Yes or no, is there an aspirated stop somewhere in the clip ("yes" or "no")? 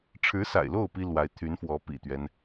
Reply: yes